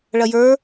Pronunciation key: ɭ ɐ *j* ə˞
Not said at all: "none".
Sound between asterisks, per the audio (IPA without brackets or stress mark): j